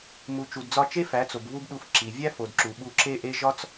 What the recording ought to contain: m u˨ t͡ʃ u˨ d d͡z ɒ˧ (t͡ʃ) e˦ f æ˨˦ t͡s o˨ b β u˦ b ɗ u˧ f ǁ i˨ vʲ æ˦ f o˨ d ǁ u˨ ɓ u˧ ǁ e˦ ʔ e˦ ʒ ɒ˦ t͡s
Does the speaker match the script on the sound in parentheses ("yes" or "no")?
yes